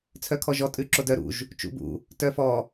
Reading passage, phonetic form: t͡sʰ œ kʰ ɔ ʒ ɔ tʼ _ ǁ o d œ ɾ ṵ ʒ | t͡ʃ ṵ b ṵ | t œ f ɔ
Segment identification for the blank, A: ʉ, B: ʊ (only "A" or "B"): A